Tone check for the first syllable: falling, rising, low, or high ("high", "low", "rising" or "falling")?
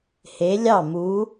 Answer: rising